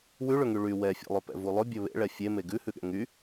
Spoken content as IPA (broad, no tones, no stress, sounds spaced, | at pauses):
w ʉ ɭ ɵ ŋ y ɭ y w ɛ fʲ ḛ lˠ ɵ p ɛ̰ v u lˠ ɵ bʲ ɵ β ḛ ɭ ɛ fʲ e m e ɡ ʉ h ʉ ɠ ɛ̰ ŋ y